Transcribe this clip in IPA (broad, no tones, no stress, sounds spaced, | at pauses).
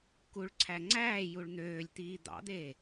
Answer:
k u ɭ ǀʰ æ ŋ͡ǀ æː j u ɭ n̪ øː lʲ t̪ iː d̪ ɑ̰ d̪ eː